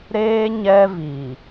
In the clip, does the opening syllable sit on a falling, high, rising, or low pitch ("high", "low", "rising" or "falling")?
high